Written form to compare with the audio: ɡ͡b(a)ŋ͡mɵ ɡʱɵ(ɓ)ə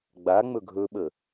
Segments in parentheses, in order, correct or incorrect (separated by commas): correct, correct